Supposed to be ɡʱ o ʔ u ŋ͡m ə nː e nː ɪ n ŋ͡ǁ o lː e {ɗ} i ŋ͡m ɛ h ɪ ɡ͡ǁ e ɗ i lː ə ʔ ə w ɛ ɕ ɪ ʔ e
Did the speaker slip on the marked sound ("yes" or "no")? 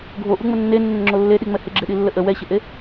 no